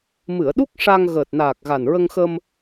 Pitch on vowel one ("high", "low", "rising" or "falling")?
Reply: low